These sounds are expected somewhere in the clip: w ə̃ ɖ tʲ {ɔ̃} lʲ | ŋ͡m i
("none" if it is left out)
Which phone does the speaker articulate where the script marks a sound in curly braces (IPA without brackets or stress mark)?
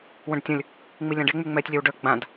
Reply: ə̃